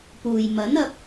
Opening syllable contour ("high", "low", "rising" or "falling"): low